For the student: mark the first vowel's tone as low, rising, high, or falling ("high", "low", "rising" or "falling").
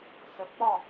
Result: rising